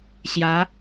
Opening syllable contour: rising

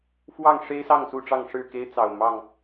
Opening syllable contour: falling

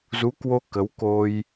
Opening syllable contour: rising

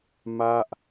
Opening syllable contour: falling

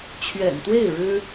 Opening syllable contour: low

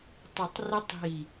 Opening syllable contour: low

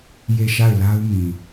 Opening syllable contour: falling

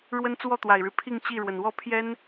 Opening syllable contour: high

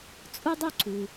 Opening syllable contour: high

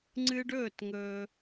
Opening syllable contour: high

